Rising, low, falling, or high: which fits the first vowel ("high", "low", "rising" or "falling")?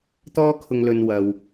high